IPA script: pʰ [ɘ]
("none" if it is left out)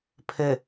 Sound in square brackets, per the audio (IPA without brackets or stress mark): ɘ